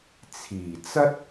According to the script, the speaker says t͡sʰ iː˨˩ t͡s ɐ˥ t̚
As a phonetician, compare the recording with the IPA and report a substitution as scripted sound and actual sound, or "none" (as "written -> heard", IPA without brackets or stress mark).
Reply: none